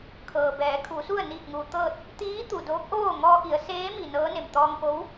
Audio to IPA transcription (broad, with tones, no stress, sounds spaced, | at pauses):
kʰ ɤː˩ b ɛː˩˧ kʰ u˩˧ s u˥˨ ə̯ n iː˧˩ k̚ ŋ uː˩ t̪ ɤː˥˨ t̚ | t̪ iː˧˥ t̪ u˩ d oː˧˥ k̚ ʔ oː˥˨ ŋ ɔː˧ ʔ i˩˧ ə̯ s eː˧˥ m i˩ n ɤː˧˥ n e˩ m t̪ ɔː˧ ŋ p o˧˥ w